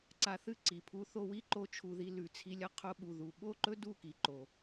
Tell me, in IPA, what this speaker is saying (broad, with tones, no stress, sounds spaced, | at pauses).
ǀ a˧ θ ɨ˦ ǀ i˨ pʰ u˦ θ o˧ w i˦ ǃ o˧ t͡ʃʰ u˨ ð i˧ l ʉ˨ t͡sʰ i˧ lʲ ɐ˦ qʰ o˧ ɓ u˨ ð u˨ ɓ o˦˨ ǃ ɵ˦ d u˦˨ k i˨ ǃ o˨